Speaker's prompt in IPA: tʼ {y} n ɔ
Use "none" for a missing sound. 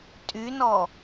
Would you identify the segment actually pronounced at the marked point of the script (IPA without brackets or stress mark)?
y